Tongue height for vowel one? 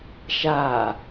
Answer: low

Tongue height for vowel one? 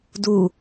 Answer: high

